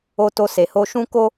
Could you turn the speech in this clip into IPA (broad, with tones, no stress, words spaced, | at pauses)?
o˧to˧se˨ho˧ ʃũ˦ ko˦